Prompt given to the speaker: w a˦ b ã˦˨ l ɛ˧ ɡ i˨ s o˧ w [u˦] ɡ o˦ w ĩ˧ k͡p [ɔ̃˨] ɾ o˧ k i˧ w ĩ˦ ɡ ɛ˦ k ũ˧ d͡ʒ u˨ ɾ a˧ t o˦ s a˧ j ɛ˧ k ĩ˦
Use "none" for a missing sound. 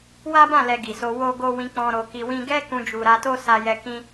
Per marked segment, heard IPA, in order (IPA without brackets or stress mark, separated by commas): o˦, ɔ̃˧